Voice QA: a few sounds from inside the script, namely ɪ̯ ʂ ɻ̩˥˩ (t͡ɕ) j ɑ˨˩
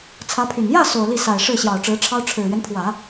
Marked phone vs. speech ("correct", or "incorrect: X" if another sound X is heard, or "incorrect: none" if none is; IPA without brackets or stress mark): incorrect: ɕ